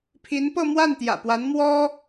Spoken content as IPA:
pʰi˧˥npɤ˥˧mwa˥˩n t̪jä̰˨˩pwa˧˥nmwɔ˥

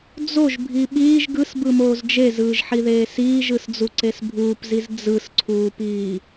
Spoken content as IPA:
d͡zoʒbʱi ɓiːʒ ɡɯsbɯmoːz d͡ʒezɯːʒħiðeː siːʒɯsd͡zuǀes bʱuːpziz d͡zɯsǀʰuːpiː

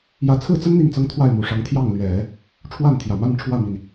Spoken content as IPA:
jä˧˥t͡sʰɹ̩˥˩t͡sə˥n n̪i˥˩ŋt͡sɤ˥ŋ t̪ʰwa˥˩ɪ̯mu˨˩ʂɑ˧˥ŋ t̪ʰjɑ˥˩ŋlɥɛ˨˩˦ | ʈ͡ʂʰwa˥˩nt̪ʰjä˨˩ma˥˧n ʈ͡ʂʰwä˥˩mi˩n

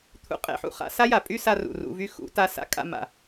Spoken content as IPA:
t̪ʰṵ˧qʼḛ˧ħṵ˨χa̰˦ sa˦ja˨pʼy˦sa˧ rṵ˨rṵ˧vy˦ xṵ˨˦ta˦ sa̰˧kʼa̰˧ma̰˨

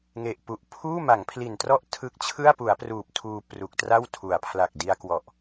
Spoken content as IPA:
ŋe˨˩ʔpu˨˩ʔ pʰuː˥˩ma˩˦ŋpʰli˨˩ntrɔ˥˩ʔ tʰɯ˦˥k̚t͡ɕʰɯ˥˩a̯pu˩˦a̯pruː˨˩p̚ tʰuː˧ pru˨˩k̚tra˥˩w tʰu˩˦a̯pʰla˨˩k̚ di˧a̯kwɔ˨˩ʔ

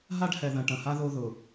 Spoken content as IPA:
ɦa˦ɖhɛ˨ ðɐ̃˨ʈɐ̃˨ha˦ ðo˦ðʊ˨

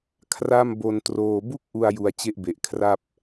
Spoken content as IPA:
kʰra˥˩mbo˧n troː˧ bu˥˩k̚ʔu˧a̯ ju˧a̯t͡ɕe˥˩ʔbe˨˩ʔ kʰra˥˩p̚

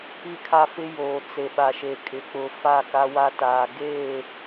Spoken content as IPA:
i˦˨kʰa˦fɪ˦ joː˨t͡se˨ɓa˨ʃe˨ kʼɪ˨k͡pʊ˨ fa˦˨ka˦wa˦taː˨ ɡeː˦˨

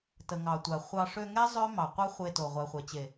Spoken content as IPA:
tə˨ ŋɑ˨tʷa˨ χʷɑ˧ ʂø˧ŋɛ˦ zˤø˦ mɑ˨ qʷɑ˦χʷe˧to˨ ʁʷɛ˨χʷɛ˨t͡ɕe˨

